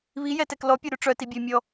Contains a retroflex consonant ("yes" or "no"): yes